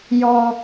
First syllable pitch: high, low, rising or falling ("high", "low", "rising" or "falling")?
high